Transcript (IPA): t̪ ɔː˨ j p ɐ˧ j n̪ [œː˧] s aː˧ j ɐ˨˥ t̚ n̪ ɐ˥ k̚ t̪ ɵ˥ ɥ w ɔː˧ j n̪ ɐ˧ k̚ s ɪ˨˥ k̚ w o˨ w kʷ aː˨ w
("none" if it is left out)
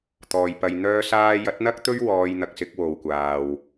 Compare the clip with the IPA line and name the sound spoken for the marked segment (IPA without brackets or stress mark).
œː˥